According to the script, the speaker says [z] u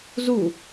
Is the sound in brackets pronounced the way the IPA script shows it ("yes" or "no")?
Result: yes